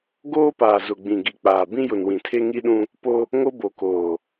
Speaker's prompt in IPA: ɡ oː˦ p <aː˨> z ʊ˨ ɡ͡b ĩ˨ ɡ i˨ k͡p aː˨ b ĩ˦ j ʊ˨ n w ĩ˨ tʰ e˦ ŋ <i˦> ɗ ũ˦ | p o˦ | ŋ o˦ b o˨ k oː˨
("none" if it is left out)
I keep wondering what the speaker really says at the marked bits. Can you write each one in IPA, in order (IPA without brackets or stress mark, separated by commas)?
aː˨, i˦